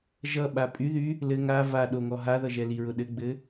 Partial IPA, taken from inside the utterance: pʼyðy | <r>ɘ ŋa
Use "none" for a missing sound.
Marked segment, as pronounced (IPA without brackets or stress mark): l